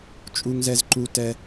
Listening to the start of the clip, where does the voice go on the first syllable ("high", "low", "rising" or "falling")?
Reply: high